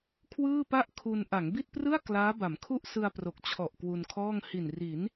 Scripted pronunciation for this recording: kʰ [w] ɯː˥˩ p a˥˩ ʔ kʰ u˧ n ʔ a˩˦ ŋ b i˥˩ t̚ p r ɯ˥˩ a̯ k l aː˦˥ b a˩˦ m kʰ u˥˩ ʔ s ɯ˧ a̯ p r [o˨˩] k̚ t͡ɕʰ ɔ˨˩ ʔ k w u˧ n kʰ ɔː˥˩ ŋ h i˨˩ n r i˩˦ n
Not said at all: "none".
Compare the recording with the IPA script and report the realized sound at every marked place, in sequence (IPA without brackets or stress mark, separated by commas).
w, o˨˩